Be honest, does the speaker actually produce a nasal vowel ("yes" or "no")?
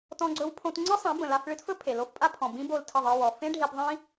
yes